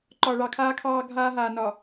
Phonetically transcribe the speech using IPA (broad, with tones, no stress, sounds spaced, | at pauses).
ǃ ɒ˨ ɭ ɑ˨ kʰ aː˦ kʰ ɑː˦ ɡʱ aː˦ ɦ aː˨ n ɒ˨